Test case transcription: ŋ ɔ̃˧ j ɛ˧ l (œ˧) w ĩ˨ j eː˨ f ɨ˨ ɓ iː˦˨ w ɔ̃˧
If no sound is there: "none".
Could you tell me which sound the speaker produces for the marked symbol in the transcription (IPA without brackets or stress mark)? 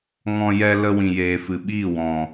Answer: ə˧